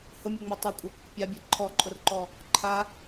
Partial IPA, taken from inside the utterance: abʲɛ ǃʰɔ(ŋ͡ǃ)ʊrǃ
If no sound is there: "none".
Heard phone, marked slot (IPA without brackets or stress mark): ǃʼ